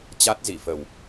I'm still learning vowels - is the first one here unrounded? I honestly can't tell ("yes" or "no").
yes